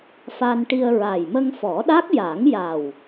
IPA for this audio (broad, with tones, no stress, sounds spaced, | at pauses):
f a˧ n ʈ i˧ ə̯ ɹ a˨˩ j m ə˧ ŋ f ɔ˨˩˦ ɗ a˦˥ k̚ j a˨˩˦ ŋ j a˨˩ w